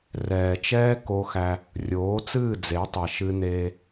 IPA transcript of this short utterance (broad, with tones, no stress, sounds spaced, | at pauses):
r ɛː˨ t͡ʃ ɛː˦ k o˦ x æ˦ | rʲ oː˨˦ t͡s ɨː˦˨ d͡z e˨˦ tˤ ɛ˨ ʃ ɨ˦ n eː˦